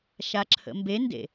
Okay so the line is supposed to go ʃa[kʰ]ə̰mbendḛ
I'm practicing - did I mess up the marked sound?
yes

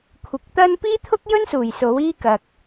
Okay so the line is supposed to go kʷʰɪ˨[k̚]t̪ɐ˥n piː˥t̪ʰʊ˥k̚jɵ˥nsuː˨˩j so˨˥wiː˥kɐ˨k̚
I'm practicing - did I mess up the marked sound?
no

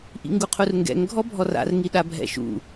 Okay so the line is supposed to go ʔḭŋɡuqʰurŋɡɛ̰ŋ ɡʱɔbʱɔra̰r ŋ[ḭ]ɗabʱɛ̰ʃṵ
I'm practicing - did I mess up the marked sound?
yes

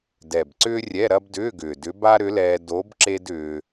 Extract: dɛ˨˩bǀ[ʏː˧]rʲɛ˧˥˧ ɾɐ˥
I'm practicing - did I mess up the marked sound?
yes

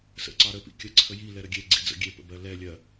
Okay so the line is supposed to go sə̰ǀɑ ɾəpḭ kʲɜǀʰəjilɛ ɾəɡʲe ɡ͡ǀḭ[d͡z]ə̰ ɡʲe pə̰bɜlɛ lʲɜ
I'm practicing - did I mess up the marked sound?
no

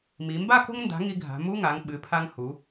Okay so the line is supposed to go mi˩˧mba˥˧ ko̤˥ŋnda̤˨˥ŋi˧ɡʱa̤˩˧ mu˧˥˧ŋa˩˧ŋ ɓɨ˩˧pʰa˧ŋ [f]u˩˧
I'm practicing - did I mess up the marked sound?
yes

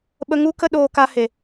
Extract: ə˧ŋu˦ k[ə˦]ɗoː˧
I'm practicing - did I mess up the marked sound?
no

